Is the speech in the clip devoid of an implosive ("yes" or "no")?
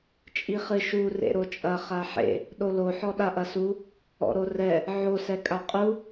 no